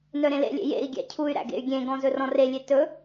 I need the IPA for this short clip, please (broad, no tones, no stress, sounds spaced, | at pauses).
n œ ɾ ẽ l ḛ lʲ ḛ j ḛ i̯ ɡʲ æ̰ cʰ u y̯ ɾ æ̰ ɡ ḛ y̯ ɡʲ ẽ ɡ ɔ̃ z ɵ r ɔ̃ r e lʲ e t ɵ